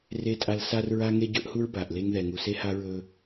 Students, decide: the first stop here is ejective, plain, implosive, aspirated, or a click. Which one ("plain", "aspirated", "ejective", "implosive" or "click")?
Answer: ejective